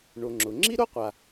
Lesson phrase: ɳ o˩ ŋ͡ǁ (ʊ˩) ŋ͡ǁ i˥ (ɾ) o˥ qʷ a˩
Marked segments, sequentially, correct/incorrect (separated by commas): correct, correct